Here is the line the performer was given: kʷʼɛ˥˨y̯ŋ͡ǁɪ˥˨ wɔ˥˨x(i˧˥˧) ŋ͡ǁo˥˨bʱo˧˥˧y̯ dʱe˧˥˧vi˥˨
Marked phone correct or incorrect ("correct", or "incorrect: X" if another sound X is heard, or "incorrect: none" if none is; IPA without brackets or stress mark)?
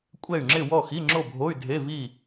correct